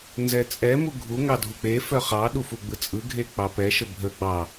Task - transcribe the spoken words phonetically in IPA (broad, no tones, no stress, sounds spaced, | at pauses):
n z ɛ t͡sʼ ɛ m u ɡʱ u ŋ ɑ dʱ u k͡p e f œ χ ɑ ɗ u f u ɡ͡b ɯ t͡sʼ ɯ ɡʱ e k͡p ɑ p ɛ ʃ ə bʱ ə ɡ͡b ɑ